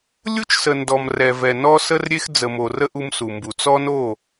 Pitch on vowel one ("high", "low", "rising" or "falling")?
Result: high